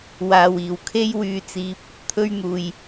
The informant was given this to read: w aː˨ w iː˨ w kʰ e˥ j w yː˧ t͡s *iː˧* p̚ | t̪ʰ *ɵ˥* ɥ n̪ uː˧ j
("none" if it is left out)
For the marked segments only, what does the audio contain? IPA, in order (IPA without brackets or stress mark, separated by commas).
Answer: iː˧, ɵ˥